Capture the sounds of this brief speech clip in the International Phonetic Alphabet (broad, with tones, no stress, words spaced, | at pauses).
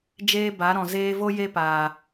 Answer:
d͡ʒeː˦ba˨˦ɾɔ̃˨ zeː˧vo˦ je˦paː˨